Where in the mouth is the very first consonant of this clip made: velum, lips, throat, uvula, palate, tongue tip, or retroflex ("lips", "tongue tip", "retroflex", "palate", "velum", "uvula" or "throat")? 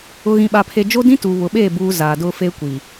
velum